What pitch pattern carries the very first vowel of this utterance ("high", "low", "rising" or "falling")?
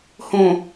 low